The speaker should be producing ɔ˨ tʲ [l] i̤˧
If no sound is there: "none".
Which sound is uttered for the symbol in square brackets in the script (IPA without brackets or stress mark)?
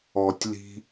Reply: l